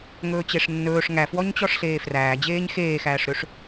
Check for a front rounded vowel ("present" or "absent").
present